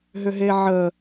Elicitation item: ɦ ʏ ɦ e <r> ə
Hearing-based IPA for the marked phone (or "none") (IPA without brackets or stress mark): ʕ